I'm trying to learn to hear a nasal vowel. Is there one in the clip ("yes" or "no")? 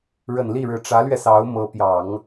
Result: no